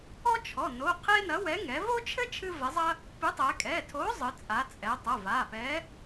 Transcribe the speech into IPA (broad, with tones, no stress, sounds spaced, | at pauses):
ɔ˥ t͡ʃʰ ɔ˩˧˩ n o˩˧˩ qʰ e˥ n ɐ˨˥ w ɛ˨˥ ŋ ɛ˩˧ v o˥ t͡ʃʰ ɘ˥ t͡ʃʰ ɨ˥ v ɛ˨˥ zˤ ɐ˥ | p ɨ˨˥ tˤ ɛ˩˧ kʼ ɛ˩˧˩ tʰ o˨˥ zˤ ɨ˩˧ t͡sʼ a˩˧ t͡sʼ ɛ˩˧ tˤ ɐ˩˧˩ v a˩˧˩ p ɛ˨˥